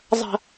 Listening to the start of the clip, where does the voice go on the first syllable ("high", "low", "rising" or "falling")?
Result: low